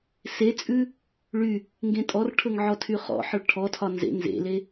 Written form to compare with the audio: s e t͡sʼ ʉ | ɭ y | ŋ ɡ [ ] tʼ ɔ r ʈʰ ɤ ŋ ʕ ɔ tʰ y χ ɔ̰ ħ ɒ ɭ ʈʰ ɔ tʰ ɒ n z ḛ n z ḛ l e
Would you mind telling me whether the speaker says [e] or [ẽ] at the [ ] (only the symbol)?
ẽ